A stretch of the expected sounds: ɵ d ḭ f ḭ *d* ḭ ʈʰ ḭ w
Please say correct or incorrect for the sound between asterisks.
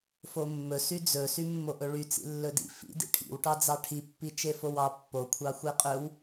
correct